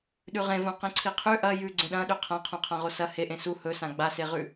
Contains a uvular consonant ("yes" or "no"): yes